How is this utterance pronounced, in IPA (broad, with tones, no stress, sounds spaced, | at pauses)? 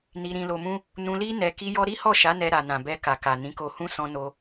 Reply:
n i˧ ɾ ĩ˧ l o˧ m ũ˦ | n ũ˧ l i˦ n ɛ˧ k i˦ j ɔ˦ ɾ i˦ h ɔ˦˨ ʃ a˨˦ n ɛ˧ ɾ a˨ n ã˨ b ɛ˧ k a˨ k a˨ n ĩ˨˦ k o˧ h ũ˦ s ɔ̃˧ n o˧